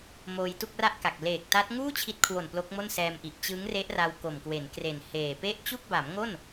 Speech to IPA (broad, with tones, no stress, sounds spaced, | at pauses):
m oː˧ j t u˥˩ k̚ r a˥˩ ʔ k a˨˩ k̚ l eː˨˩ k̚ t a˦˥ t̚ ŋ uː˥˩ t͡ɕʰ i˦˥ t̚ kʰ w o˨˩ n p l o˦˥ k̚ m o˥˩ n s ɛː˧ m ʔ i˨˩ ʔ t͡ɕ ɯ˦˥ ŋ r e˦˥ ʔ r a˧ w k o˨˩ m k w e˩˦ n k r e˨˩ n h eː˨˩ p e˥˩ ʔ t͡ɕ u˥˩ k̚ b a˩˦ m ŋ o˥˩ n